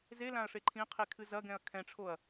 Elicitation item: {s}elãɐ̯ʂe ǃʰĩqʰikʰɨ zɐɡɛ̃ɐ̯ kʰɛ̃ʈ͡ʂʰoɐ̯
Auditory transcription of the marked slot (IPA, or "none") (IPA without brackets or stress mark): z